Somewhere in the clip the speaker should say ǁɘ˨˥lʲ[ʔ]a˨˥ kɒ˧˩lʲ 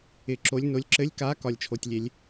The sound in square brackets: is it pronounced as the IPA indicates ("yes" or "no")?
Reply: no